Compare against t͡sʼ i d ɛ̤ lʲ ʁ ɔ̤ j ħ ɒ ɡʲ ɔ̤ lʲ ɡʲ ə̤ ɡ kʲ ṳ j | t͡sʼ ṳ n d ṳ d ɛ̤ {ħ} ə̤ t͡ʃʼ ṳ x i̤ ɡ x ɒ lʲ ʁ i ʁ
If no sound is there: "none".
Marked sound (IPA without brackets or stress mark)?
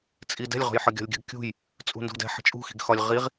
ħ